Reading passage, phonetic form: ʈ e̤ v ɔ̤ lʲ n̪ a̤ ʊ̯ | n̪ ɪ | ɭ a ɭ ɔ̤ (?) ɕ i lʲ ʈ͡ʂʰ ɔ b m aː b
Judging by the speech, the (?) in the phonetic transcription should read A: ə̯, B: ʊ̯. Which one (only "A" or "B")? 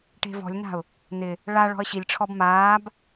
A